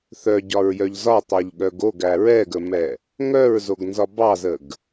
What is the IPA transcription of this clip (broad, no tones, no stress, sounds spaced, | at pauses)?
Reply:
θ œ ɟ ɒ ɹ j œ ʎ z ɒ tˤ œ ʎ ɠ œ ɡ o ɡ æ ɹ ɛ ɡ ə m ɛ | ŋ œ ɹ z o ɡ n z ɒ b ɑ z ə ɡ